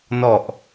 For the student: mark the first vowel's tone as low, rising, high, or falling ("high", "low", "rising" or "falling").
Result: low